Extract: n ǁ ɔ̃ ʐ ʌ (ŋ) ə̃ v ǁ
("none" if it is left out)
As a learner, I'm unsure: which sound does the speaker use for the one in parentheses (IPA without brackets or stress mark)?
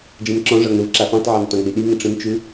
ŋ